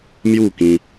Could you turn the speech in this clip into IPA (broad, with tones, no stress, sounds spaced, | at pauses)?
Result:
m j u˥˧ k ĩ˧